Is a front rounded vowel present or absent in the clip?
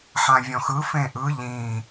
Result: absent